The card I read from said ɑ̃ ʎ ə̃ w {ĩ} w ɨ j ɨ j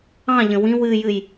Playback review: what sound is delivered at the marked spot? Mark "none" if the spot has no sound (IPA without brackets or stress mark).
ĩ